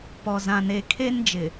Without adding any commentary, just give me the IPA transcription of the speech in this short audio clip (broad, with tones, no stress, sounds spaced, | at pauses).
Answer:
p ɔ˨ z ã˨ n eː˨ kʰ e˦ n d͡ʒ ɪ˨